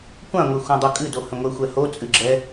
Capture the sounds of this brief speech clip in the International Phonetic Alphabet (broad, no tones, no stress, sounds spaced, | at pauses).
kʷ ã ŋʷ e xʷ ã dˤ o kʼ ɨ d o h ə̃ ŋʷ ɛ xʷ ɛ h o t͡sʼ ɨ ɡ͡ǁ ɛ